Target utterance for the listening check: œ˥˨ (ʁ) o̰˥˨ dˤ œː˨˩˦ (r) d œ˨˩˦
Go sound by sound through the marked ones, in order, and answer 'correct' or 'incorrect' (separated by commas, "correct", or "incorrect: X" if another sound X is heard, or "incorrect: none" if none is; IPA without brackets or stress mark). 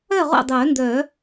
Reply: correct, incorrect: n